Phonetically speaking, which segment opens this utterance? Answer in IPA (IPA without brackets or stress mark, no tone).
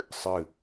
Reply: sˤ